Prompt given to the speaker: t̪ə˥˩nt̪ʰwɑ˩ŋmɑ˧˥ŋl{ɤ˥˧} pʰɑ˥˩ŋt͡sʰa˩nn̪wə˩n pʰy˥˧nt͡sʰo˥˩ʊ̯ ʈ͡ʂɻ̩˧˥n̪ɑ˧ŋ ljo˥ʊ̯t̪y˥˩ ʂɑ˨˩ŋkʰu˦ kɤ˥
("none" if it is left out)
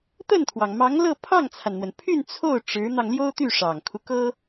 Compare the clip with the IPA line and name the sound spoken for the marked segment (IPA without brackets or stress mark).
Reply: ɤ˥˧